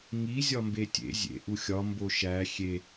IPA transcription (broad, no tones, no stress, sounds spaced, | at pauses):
ŋ i zʲ ɒ m b e tʲ ḛ zʲ ḛ ʔ u xʲ ɒ m b o ʃ æ xʲ e